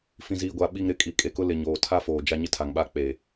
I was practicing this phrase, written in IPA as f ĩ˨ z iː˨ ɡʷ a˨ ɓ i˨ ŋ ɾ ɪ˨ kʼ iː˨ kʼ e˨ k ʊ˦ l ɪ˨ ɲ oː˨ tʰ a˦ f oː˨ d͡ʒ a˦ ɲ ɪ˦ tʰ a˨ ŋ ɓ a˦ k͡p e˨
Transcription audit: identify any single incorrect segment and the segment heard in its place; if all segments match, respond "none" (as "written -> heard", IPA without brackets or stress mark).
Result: none